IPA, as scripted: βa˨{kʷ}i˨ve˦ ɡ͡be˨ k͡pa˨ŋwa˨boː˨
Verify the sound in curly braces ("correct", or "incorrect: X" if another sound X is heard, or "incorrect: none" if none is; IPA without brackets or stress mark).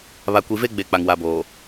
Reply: correct